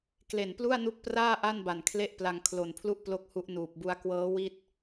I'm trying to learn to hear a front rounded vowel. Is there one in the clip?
no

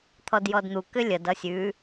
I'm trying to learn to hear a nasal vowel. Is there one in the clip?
no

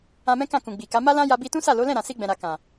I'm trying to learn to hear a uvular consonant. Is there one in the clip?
no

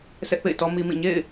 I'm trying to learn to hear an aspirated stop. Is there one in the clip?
no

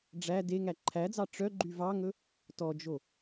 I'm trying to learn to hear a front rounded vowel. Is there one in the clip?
yes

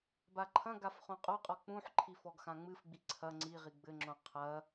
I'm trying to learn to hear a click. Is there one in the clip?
yes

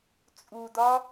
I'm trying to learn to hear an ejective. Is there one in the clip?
yes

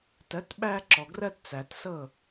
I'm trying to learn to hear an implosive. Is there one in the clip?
yes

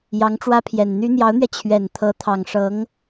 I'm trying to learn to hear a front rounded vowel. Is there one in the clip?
yes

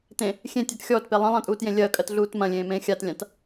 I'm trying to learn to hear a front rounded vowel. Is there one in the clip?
no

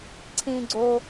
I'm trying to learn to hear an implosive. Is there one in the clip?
no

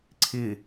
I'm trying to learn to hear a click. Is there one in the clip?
yes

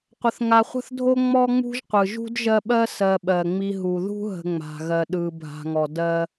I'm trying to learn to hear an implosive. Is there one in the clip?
yes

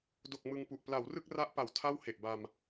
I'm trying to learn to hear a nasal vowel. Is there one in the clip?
no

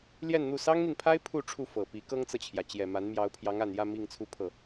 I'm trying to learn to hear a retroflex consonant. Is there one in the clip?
yes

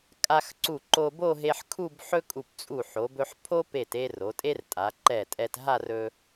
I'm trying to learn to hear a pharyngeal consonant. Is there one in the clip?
yes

